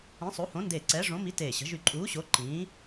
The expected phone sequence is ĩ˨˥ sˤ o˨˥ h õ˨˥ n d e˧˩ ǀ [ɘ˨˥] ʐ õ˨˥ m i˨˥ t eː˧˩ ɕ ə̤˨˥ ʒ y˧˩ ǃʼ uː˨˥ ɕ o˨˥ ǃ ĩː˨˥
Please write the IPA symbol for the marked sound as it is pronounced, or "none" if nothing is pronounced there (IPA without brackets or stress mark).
ɛ˨˥